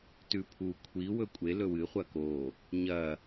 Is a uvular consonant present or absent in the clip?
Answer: present